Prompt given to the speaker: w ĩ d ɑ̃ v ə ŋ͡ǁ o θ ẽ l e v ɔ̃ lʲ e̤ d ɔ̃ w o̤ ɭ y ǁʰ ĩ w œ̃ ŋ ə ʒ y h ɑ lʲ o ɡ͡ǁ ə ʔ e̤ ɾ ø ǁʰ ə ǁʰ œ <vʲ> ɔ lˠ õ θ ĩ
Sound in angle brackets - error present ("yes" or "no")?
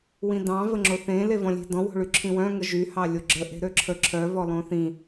yes